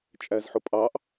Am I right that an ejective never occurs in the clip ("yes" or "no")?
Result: no